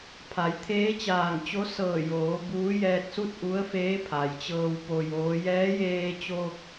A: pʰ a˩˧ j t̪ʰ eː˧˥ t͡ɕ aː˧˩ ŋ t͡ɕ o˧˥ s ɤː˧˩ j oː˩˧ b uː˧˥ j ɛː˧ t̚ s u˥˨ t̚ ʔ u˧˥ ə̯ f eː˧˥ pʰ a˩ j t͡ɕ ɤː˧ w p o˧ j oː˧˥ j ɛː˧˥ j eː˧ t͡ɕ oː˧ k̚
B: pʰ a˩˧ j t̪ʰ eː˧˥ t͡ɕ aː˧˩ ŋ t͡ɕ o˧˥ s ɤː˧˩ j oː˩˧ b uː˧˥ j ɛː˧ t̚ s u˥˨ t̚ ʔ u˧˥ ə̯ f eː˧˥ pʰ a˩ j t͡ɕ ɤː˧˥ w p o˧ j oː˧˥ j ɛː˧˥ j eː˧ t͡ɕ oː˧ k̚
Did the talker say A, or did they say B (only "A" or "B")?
A